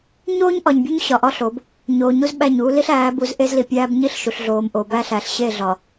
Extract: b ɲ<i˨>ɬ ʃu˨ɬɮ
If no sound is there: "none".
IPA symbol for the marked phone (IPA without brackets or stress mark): i˦